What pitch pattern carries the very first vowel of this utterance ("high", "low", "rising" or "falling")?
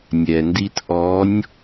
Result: low